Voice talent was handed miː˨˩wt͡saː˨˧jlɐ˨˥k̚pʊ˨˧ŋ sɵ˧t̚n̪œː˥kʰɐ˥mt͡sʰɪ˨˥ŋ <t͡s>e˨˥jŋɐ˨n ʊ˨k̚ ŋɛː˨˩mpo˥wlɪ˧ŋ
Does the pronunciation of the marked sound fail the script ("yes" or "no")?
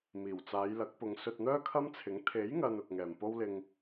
yes